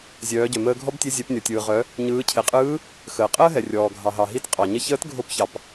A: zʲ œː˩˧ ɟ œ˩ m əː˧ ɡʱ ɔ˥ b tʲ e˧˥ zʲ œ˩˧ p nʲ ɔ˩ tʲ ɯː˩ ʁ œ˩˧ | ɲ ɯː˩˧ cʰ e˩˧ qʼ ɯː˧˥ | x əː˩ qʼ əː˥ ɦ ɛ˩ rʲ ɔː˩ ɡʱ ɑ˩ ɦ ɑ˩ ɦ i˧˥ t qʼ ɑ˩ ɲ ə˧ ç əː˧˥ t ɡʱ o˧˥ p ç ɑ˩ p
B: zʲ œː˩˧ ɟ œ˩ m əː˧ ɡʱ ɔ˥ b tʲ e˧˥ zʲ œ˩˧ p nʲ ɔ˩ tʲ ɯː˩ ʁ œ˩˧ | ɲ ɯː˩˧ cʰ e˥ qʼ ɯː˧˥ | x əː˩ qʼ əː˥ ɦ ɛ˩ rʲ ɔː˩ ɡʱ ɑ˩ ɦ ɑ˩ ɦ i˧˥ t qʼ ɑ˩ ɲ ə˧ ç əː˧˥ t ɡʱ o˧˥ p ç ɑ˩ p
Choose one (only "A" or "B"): A